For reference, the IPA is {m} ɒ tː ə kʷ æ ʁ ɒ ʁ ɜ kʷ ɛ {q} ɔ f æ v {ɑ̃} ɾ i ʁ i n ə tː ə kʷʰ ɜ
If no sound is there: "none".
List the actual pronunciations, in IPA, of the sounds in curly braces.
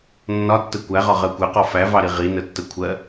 nː, q, ɑ

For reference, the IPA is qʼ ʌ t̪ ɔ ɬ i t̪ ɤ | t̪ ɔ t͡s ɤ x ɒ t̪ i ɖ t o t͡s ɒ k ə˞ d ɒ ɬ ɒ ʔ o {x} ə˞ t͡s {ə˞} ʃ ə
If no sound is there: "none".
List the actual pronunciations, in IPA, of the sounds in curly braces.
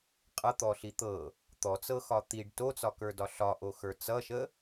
x, ʌ

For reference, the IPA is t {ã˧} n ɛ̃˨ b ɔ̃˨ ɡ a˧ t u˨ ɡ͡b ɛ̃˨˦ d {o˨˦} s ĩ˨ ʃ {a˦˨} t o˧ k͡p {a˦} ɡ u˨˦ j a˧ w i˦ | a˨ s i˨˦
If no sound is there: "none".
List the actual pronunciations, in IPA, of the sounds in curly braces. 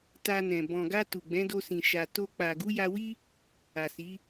a˧, o˧, a˨, a˨

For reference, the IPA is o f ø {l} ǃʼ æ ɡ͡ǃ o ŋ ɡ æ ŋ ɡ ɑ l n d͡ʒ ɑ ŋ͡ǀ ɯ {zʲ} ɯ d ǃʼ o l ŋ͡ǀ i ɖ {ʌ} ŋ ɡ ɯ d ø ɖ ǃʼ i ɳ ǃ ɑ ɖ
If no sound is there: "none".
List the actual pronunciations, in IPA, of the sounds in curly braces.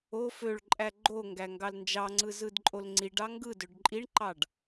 ɭ, z, ɑ

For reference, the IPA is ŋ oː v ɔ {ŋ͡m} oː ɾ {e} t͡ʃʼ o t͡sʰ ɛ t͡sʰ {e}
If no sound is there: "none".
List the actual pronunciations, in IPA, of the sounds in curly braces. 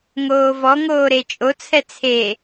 ŋ, e, e

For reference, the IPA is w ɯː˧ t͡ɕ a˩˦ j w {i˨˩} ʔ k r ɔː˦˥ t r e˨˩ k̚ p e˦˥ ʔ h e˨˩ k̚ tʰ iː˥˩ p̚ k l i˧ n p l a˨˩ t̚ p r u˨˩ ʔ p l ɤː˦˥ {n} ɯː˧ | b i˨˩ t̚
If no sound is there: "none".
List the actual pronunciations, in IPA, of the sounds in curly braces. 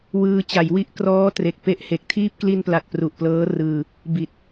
i˦˥, r

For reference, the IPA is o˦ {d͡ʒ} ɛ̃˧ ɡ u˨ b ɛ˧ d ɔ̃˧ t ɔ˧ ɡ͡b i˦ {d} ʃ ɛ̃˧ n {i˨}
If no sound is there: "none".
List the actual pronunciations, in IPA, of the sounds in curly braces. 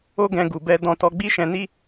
ɡ, none, i˦

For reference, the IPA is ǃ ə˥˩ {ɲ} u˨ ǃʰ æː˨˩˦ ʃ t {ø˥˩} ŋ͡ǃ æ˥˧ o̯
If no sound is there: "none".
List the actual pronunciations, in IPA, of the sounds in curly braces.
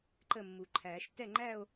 mː, ɛ˥˩

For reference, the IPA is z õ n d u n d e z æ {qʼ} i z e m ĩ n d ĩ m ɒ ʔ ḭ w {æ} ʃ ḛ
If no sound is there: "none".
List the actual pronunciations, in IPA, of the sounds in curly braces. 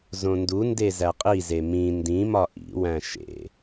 qʼ, æ̃

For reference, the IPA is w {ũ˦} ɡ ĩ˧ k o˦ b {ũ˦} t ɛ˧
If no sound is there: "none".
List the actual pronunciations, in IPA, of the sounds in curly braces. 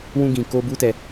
ũ˦, u˦

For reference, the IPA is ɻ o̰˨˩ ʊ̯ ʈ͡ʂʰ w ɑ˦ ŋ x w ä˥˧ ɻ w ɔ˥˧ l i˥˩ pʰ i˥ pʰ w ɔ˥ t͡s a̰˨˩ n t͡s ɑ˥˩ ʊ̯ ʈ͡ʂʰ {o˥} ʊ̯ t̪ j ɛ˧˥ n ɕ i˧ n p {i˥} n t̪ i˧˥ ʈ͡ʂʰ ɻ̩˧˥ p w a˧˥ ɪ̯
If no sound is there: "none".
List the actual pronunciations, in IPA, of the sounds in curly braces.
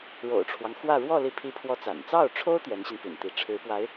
o˥, ḭ˨˩

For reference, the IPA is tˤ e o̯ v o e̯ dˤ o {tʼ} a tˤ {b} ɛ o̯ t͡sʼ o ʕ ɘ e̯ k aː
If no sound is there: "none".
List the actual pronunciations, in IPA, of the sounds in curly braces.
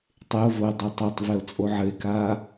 tˤ, v

